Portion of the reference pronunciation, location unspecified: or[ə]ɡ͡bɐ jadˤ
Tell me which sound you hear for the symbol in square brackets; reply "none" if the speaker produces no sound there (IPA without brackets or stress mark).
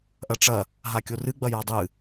ɨ